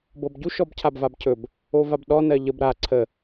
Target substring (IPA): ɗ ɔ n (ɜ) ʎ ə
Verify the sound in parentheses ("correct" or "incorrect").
correct